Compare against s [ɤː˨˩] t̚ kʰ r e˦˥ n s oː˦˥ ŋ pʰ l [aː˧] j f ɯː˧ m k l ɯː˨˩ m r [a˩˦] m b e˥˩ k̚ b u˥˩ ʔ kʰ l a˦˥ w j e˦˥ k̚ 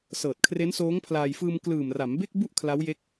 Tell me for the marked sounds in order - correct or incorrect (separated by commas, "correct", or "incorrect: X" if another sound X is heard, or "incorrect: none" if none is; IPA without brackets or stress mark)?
correct, correct, correct